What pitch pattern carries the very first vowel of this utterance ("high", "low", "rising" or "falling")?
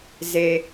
low